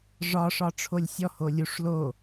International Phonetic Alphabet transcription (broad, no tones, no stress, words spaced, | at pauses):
ʐɒ ʂɒʈ͡ʂʰolʲsʲɔ holʲuʂ lo